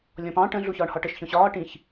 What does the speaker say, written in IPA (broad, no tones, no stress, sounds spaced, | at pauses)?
lʲ ɔ̃ p ɑ̃ ʈ ə̃ ɮ u ç ɒː ɳ h ɒ ʈ ə ʃ ç ɔ̃ ɕ ɒː ʈ ĩ ç